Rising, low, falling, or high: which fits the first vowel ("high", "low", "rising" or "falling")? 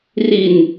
low